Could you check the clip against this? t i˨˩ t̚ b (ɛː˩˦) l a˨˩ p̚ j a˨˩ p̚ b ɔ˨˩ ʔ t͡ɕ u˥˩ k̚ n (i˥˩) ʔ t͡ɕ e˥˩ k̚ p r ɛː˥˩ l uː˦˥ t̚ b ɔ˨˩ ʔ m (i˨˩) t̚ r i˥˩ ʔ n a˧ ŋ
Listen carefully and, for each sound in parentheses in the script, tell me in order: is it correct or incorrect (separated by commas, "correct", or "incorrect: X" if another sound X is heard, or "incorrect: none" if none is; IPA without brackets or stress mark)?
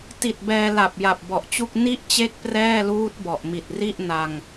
incorrect: ɛː˧, correct, correct